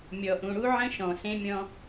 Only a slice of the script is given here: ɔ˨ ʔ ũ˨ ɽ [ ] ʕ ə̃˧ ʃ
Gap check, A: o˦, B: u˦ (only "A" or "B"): B